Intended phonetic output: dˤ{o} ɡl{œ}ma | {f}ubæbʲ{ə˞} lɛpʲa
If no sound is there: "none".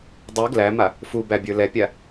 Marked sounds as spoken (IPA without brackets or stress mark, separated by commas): u, æ, f, ə˞